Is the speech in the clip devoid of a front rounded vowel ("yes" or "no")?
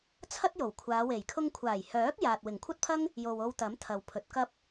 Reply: no